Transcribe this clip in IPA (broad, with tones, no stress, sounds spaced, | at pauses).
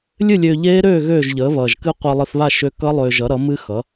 lʲ ɨ˥˨ lʲ øː˧ ʎ eː˦˥ ɾ øː˥˨ ɣ øː˥˨ ʒ ʎ əː˩˥ β ʌː˨˩ ʒ k ɨ˦˥ qʷ ʌ˧ lˠ ɨ˧ θ β a˥˨ ʃ ø˦˥ k ʌ˦˥ lˠ øː˧ ʒ ʌ˩˥ ɾ ʌ˩˥ m ɨ˦˥ x ʌ˩˥